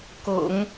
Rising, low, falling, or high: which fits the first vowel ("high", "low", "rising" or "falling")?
low